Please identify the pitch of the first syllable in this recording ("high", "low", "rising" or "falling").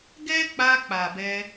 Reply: high